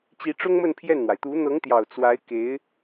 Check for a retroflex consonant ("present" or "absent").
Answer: present